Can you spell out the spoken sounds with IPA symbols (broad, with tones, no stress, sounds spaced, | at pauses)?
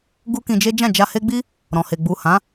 ɡ u˦ k ĩ˧ d͡ʒ e˦ d͡ʒ ã˦˨ d͡ʒ a˧ h e˦ ɡ͡b i˦ | ɾ ɔ̃˨ h e˨ ɡ͡b u˨ h ã˨˦